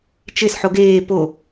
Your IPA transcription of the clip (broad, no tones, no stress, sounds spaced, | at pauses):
t͡ʃ e s ħ o ɡ eː p o